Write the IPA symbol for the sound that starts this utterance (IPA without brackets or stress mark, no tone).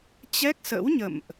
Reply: t͡ɕ